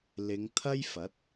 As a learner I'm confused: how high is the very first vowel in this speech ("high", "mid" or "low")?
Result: high